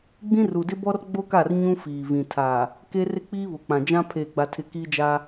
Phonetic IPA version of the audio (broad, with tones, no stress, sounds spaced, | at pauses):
ɡ͡b ĩ˦ r u˨ d ɪ˦ b ɔ˦ r ɡ͡b o˦ k a˦˨ r ɲ ũ˦ f iː˨ v ĩ˨ tʰ a˨ | k e˦ r ɪ˦ k͡p iː˦ β ʊ˨ k͡p ã˨ d͡ʒ ã˦ pʰ eː˨ ɡ͡b a˨ tʰ ɪ˨ k iː˦ d͡ʒ a˦